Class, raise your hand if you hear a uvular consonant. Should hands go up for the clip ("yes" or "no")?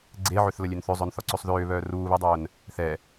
no